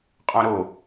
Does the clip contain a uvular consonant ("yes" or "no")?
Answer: yes